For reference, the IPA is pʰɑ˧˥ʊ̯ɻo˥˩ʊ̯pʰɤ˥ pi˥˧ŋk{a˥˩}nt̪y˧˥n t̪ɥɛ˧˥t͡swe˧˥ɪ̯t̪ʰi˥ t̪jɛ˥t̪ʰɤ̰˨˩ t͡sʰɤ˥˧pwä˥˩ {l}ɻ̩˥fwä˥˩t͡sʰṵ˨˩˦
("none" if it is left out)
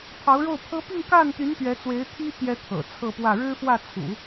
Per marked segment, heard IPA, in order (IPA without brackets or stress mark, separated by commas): a˥˩, ɻ